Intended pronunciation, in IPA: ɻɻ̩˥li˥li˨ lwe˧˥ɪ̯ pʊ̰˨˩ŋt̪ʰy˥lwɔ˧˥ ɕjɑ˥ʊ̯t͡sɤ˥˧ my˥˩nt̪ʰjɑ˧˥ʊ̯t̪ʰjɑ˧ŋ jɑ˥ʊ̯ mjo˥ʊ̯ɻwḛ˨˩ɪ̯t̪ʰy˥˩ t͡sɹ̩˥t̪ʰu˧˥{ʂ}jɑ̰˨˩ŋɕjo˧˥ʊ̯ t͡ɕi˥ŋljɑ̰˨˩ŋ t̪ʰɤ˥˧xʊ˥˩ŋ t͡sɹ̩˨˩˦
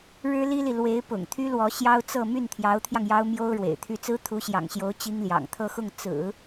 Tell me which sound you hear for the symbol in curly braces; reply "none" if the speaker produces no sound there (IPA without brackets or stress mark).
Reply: ɕ